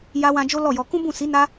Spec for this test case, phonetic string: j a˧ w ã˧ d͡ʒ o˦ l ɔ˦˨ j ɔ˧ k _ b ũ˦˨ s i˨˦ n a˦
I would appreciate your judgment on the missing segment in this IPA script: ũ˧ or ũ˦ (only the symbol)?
ũ˦